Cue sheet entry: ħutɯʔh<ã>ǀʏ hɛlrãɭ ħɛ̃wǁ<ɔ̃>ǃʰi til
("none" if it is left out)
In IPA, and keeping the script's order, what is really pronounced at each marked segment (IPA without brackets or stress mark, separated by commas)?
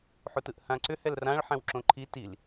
ã, õ